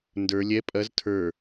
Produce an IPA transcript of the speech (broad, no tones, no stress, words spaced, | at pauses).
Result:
ndə˞ lʲɛ pʼɐz tʰə˞